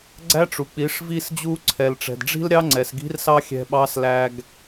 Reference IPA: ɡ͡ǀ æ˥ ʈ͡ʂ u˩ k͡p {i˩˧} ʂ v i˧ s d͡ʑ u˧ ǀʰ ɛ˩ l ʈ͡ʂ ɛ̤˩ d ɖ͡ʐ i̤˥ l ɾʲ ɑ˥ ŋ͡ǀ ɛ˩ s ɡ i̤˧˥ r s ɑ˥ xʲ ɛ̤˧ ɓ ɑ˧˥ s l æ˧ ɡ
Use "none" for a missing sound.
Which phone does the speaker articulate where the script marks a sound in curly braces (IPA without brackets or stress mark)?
i˩˧